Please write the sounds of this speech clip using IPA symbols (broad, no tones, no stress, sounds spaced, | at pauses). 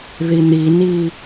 ð i n̪ i n i